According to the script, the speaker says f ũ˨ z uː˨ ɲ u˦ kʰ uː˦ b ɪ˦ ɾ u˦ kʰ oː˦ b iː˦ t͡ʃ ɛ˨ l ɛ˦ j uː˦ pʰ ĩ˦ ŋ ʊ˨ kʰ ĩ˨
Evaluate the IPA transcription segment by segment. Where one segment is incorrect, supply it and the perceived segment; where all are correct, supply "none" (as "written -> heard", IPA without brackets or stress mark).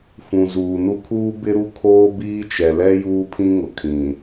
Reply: ɲ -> n